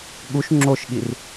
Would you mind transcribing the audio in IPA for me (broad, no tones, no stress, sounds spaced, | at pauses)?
ɠ u ʃ ŋ͡ǁ o ʃ ɠ i r